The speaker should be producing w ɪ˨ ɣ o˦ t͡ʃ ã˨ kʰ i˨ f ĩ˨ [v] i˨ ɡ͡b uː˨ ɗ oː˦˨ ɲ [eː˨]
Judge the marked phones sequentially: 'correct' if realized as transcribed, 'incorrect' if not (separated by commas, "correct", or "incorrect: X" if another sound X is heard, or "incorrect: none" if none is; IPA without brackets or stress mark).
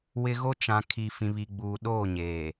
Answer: incorrect: β, correct